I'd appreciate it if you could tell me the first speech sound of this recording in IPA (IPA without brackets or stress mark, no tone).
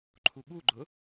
ǃʰ